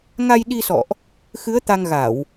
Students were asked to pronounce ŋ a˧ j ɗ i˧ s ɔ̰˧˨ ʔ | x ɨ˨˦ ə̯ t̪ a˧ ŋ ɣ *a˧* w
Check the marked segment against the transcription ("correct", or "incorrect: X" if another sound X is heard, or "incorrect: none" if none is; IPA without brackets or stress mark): incorrect: a˧˩˨